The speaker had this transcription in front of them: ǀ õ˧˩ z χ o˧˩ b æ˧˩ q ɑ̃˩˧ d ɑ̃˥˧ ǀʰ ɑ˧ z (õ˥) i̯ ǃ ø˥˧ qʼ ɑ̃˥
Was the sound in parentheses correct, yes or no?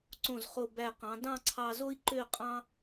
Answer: no